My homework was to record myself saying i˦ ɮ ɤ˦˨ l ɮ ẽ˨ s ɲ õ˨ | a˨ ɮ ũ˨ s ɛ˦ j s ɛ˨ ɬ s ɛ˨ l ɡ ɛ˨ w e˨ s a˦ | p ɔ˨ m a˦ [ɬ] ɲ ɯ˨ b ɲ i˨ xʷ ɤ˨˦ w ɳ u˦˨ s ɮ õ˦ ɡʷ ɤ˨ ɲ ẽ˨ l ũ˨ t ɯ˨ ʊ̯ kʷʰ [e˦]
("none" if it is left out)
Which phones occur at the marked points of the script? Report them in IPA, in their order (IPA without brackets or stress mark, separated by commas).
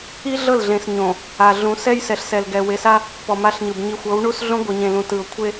ɬ, e˦